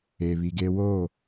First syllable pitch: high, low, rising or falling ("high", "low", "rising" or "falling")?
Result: low